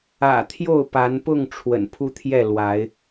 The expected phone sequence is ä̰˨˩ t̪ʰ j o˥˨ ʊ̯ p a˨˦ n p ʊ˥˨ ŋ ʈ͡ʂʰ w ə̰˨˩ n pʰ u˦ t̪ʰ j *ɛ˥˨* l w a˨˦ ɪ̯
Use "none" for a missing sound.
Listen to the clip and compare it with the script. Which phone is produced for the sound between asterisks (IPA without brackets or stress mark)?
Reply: ɛ˥˨